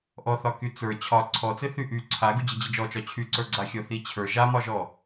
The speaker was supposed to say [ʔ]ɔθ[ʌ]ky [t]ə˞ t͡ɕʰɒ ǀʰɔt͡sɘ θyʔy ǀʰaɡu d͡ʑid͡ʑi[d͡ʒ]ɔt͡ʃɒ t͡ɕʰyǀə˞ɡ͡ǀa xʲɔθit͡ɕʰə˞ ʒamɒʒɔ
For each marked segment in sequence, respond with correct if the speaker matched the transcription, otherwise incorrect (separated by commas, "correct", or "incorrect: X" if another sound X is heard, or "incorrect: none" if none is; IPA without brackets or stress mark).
correct, incorrect: ɒ, incorrect: t͡s, correct